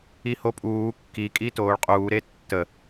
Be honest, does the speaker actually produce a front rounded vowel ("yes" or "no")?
no